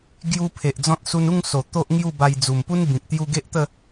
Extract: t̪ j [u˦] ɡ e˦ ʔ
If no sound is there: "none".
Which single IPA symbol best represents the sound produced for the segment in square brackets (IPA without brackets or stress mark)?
u˧